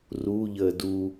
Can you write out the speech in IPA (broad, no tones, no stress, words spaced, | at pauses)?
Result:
ruʎəː du